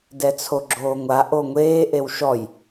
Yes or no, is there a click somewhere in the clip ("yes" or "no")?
yes